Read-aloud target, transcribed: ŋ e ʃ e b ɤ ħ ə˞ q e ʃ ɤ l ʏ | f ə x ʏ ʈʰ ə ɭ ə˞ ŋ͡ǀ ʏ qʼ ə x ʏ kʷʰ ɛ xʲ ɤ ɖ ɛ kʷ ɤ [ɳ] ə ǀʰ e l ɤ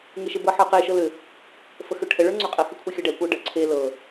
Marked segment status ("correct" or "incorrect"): incorrect